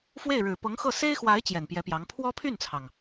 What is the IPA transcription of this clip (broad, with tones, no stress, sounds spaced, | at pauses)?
f w e˥˩ ɪ̯ ɻ ɻ̩˨˩ p ɤ˧˥ ŋ x ɤ˥˩ s e˥ ɪ̯ x w a˧˥ ɪ̯ t͡ɕ j ɛ˨˩ n p j ɛ˧˥ p j ɑ˧˥ ŋ pʰ w ɔ˥ pʰ y˥˩ n t͡sʰ ɑ˩ ŋ